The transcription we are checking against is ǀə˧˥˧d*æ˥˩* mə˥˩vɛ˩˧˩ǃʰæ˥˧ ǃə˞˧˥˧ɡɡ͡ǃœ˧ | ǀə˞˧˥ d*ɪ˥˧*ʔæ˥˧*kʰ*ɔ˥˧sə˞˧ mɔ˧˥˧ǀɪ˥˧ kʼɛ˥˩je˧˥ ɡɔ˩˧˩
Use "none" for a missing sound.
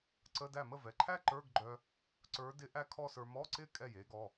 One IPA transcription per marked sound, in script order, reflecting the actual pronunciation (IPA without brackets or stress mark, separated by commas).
æ˥˩, ɪ˧˥, kʰ